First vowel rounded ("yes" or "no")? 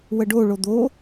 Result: no